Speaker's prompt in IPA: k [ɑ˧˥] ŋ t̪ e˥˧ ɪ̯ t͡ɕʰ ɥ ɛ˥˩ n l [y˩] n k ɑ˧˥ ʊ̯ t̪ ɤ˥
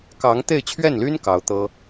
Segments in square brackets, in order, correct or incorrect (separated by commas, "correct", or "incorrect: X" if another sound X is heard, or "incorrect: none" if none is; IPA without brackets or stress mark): correct, incorrect: y˥